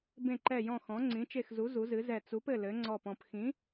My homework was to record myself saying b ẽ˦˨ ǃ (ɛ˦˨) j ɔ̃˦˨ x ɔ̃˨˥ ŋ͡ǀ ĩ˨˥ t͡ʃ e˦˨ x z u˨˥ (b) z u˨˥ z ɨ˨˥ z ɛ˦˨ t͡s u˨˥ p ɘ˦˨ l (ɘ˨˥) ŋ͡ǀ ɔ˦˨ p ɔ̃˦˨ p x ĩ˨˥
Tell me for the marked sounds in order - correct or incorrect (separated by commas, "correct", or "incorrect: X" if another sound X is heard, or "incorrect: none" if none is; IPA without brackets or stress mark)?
correct, incorrect: none, correct